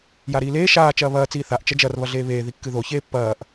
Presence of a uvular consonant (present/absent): absent